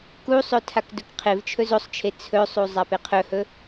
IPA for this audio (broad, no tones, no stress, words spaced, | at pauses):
kusˤɵ tʰakdɵkqʰevt͡ʃʰɵ zosˤt͡ʃʰe t͡sʰɵsˤu zˤapeqʰɵhɵ